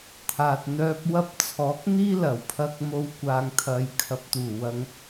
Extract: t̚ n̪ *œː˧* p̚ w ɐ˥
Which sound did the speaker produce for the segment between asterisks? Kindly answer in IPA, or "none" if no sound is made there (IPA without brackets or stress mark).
œː˧